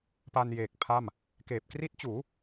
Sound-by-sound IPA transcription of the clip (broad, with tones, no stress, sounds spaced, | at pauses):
p a˧ n j eː˨˩ k̚ pʰ a˥˩ m | k eː˨˩ p̚ k r i˦˥ t̚ t͡ɕ uː˩˦